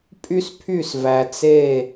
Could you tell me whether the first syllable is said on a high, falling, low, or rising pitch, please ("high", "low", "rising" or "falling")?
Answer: high